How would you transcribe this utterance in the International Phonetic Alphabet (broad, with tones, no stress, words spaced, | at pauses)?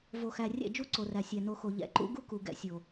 vo˨xæ˨ rʲɛ̰˦˨d͡ʒu˦ǀo˨ræ˨ sʲæ˨no˧xo˨ ʎɛ̰˨ǃṵ˦ɡu˦ ku˨ɡɛ̰˧sʲo˨